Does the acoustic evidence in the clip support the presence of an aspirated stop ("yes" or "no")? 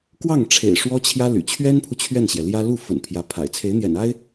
yes